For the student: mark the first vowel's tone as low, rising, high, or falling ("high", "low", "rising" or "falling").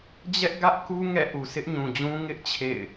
high